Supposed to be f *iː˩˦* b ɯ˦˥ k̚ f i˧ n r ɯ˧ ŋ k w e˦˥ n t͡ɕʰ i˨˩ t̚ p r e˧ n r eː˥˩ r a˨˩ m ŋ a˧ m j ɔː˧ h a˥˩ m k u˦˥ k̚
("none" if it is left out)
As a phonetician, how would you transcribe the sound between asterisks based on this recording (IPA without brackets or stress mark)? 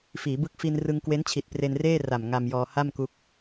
iː˩˦